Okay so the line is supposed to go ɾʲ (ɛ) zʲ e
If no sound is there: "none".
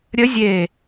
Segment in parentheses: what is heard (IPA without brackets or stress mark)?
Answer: ə